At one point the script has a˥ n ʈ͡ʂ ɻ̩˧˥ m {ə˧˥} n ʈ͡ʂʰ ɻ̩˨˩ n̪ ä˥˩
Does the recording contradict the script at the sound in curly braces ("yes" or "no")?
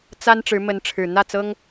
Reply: no